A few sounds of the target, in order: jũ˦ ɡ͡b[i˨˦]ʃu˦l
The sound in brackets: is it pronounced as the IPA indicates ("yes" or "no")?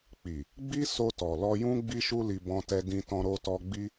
no